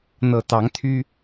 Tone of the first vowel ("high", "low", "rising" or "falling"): low